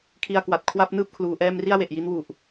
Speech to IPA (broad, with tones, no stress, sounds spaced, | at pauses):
kʰ i˧ a̯ k w a˨˩ t̚ kʰ w a˥˩ p̚ n ɯː˥˩ p̚ kʰ l uː˧ ʔ ɛː˥˩ m r i˥˩ a̯ w e˨˩ ʔ j i˦˥ n w u˨˩ ʔ